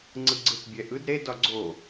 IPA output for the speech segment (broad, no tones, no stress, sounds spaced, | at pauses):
ŋ͡ǀ ɯ ɡ͡ǀ ɯ t bʲ ɛ ʔ ɯ d ɾ e d ɒ ɡ͡ǀ o